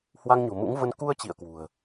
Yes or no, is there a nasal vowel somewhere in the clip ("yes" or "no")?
no